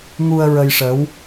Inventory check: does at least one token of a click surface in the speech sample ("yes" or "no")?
no